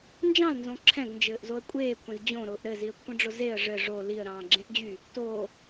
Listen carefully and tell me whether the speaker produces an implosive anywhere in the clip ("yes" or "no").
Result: no